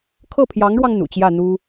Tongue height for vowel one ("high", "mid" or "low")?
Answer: mid